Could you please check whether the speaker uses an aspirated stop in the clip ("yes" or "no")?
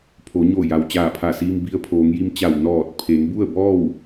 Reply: yes